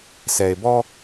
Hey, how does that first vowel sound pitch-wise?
low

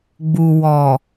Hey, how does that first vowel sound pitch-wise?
low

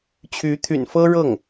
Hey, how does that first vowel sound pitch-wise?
rising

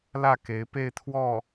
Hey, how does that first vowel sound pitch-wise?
falling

